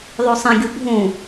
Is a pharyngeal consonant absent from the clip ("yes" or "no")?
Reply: yes